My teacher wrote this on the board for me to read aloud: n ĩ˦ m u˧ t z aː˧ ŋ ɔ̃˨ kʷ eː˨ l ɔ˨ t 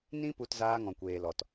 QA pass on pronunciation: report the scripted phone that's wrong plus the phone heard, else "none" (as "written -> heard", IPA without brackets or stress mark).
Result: m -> p